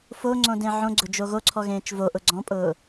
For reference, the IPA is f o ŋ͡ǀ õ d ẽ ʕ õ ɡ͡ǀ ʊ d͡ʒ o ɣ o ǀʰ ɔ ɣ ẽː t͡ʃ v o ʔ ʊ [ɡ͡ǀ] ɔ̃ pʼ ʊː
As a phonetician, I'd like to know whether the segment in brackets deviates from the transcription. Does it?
no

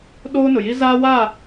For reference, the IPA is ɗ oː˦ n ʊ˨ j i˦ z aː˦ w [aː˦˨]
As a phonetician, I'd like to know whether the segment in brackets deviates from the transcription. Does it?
no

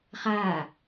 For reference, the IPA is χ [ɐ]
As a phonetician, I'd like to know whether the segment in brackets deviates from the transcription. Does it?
yes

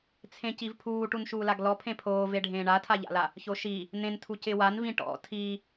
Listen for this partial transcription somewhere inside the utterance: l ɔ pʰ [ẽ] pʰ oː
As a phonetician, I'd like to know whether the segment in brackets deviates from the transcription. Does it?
no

